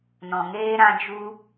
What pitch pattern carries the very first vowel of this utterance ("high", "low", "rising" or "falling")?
low